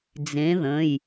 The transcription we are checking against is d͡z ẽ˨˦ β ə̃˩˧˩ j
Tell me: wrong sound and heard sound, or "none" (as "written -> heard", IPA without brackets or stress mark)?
β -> ð